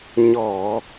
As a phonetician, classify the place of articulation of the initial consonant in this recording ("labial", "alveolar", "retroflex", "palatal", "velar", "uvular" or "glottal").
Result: palatal